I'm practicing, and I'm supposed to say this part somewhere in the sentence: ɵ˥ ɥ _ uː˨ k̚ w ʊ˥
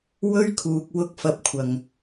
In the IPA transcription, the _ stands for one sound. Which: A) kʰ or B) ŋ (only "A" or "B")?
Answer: A